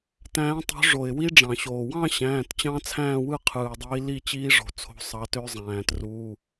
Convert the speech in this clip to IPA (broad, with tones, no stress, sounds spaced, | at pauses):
t æ̃ː˨˦ tˤ o̤˨˦ ʐ o˩ ɪ̯ w i˦˥ ɖ͡ʐ ɑ̃˩ ɕ oː˩ w ɑ̃˥˧ ɕ æ̃ː˩˧˩ t t͡ɕ ɑ̃˦˥ t͡sʰ æ̃ː˥˧ w ɯ˥˧ qʰ ɯː˩ ɪ̯ dˤ iː˨˦ l i˥˧ t͡ɕ iː˦˥ ʐ o̤˩ t͡sʰ o̤˨˦ sˤ ɑ˨˦ t ø˦˥ zˤ æ̃ː˩ t r uː˩˧˩